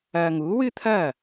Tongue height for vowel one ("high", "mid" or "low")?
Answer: low